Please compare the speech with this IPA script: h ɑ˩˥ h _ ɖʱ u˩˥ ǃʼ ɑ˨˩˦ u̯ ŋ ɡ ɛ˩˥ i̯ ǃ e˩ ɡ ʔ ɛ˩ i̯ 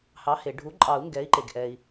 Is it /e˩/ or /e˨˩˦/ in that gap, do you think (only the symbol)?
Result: e˩